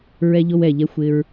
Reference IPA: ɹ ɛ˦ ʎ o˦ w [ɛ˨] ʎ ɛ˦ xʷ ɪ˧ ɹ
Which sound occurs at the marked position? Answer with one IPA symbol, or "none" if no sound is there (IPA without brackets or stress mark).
ɛ˨